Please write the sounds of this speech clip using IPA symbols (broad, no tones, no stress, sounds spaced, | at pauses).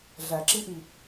ɮ æ ǁ i ʔ i